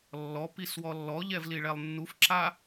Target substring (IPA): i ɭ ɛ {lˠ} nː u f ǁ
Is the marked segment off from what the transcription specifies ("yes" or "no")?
no